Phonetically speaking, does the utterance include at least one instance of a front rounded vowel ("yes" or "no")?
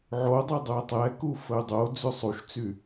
yes